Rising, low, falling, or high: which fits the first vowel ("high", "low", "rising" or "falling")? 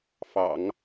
low